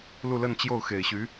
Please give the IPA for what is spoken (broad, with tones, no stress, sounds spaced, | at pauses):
l u˥˧ l ə˥˧ n t͡ɕ j o˥˩ ʊ̯ x e˨˩ ɪ̯ ɕ y˧˥